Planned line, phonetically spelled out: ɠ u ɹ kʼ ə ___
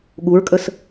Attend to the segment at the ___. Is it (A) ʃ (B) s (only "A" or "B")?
B